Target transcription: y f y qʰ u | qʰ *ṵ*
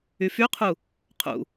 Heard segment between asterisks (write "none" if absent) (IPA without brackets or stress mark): ṵ